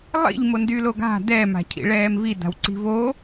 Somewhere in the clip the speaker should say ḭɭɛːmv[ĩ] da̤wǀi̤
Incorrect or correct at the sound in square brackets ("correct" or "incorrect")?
incorrect